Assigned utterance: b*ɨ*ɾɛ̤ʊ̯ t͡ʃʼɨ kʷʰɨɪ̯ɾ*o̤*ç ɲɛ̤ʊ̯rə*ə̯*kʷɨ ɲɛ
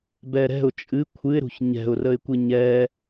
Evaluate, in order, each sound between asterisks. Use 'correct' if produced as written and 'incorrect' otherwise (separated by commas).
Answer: incorrect, incorrect, incorrect